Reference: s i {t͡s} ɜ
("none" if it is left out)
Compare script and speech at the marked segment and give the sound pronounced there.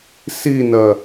n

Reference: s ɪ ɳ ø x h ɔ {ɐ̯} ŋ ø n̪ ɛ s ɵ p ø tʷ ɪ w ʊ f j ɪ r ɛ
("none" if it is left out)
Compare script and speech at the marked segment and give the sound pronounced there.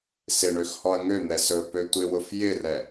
ɐ̯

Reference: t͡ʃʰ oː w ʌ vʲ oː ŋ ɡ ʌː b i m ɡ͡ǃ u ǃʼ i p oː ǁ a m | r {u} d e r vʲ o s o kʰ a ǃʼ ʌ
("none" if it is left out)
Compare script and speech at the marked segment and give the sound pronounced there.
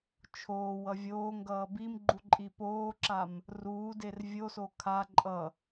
uː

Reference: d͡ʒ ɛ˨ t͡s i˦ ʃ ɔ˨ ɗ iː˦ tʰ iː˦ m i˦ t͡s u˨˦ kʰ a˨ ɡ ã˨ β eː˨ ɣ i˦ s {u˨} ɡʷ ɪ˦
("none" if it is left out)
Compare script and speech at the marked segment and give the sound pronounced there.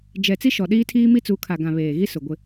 ʊ˨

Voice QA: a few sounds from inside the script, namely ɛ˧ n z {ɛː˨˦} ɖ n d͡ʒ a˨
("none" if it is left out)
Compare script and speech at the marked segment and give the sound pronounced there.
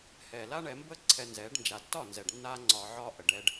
ɛː˨˦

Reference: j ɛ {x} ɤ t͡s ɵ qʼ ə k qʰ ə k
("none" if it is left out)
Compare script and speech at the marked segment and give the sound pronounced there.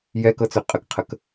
k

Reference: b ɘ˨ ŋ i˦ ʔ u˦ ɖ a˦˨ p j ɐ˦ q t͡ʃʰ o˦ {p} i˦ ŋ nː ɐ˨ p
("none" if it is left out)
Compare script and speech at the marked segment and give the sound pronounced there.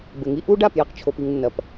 p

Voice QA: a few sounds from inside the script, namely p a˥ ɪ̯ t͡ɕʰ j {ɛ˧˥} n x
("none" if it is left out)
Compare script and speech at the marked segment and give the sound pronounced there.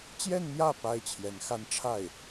ɛ˧˥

